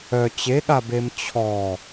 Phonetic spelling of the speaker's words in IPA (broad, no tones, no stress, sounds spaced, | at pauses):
œ t͡ɕ e ɠ a b e m t͡ɕʰ ɔ